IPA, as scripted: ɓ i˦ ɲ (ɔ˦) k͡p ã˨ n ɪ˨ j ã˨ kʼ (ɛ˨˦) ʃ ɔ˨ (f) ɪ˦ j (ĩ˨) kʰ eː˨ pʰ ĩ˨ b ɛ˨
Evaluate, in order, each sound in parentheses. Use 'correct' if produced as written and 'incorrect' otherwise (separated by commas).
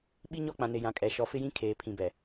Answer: correct, incorrect, correct, incorrect